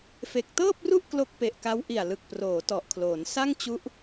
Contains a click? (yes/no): no